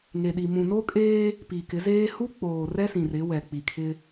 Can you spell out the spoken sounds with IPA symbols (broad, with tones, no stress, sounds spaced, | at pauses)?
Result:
ŋ e˨ ɗ i˨ m ũ˨ n o˦ kʼ eː˦ | p i˨ k ɪ˨˦ z eː˦ h u˦ k͡p oː˨ r ɛ˦ s ĩ˨ r ɪ˨˦ w ɛ˨ k͡p i˨ kʰ ɪ˦